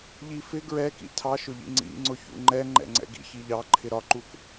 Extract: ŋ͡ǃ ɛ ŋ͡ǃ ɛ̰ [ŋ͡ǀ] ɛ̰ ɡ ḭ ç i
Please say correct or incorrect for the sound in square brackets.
correct